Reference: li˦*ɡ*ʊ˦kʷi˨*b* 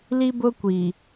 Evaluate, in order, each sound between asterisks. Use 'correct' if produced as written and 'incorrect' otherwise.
incorrect, incorrect

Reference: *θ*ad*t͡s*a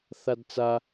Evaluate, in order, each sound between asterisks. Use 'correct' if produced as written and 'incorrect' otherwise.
correct, correct

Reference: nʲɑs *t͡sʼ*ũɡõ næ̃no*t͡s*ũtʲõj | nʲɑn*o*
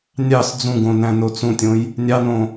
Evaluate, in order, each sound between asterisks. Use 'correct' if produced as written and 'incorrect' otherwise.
incorrect, correct, incorrect

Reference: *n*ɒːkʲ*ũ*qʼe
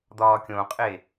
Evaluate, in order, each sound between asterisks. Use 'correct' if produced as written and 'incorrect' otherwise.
incorrect, incorrect

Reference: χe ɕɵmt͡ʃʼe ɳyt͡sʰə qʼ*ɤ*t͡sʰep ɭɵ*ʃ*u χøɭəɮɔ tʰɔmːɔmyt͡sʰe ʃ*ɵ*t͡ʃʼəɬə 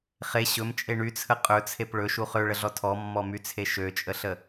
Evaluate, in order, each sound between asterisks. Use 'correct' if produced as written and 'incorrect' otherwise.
incorrect, correct, incorrect

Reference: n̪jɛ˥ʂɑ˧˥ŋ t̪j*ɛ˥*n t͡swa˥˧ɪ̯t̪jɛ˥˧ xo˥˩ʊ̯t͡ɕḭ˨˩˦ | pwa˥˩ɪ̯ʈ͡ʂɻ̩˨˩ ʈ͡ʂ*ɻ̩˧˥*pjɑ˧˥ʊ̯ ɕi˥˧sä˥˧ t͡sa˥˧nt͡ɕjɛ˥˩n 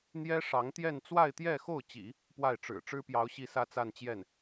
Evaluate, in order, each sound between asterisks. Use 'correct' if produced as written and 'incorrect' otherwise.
incorrect, incorrect

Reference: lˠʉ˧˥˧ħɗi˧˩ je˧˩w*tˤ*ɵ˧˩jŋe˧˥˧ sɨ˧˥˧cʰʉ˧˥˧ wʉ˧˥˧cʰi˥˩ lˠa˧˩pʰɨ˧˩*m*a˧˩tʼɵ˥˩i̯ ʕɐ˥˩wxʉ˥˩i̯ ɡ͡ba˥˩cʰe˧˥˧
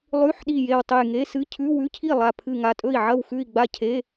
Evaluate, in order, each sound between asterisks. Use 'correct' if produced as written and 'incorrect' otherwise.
correct, incorrect

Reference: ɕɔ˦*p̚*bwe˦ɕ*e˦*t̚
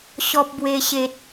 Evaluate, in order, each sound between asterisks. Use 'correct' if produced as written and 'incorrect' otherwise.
correct, correct

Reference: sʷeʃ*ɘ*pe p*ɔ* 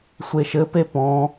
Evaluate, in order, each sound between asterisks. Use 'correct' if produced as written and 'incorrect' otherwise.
correct, incorrect

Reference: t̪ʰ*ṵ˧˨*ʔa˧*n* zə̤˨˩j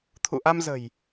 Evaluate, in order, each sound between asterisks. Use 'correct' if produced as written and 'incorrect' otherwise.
correct, incorrect

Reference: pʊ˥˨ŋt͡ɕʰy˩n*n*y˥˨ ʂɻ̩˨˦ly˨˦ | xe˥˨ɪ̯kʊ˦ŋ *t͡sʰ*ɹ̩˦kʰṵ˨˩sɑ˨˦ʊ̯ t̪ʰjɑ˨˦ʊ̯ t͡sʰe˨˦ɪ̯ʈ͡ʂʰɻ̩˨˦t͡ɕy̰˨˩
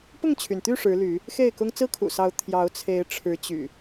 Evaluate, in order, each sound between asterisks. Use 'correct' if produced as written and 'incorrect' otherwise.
incorrect, incorrect

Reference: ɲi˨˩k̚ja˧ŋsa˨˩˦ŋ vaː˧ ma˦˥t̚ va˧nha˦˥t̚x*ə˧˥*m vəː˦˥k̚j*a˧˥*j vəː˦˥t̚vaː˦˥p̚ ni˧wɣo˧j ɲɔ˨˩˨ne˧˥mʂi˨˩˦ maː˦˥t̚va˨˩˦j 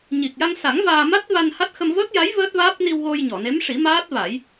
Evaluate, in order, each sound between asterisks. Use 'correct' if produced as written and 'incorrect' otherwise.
incorrect, correct

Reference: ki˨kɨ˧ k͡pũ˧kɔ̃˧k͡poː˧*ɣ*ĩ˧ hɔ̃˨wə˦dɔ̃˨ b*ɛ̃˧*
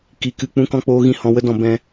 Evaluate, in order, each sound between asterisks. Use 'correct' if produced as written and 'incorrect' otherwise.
correct, correct

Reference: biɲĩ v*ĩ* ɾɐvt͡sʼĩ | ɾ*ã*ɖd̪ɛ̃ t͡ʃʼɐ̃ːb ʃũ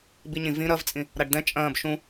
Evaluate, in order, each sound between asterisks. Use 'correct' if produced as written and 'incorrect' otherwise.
correct, incorrect

